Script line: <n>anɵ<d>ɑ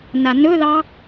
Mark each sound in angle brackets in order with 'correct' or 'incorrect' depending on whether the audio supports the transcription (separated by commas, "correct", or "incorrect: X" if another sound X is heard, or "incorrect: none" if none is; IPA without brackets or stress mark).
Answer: correct, incorrect: ð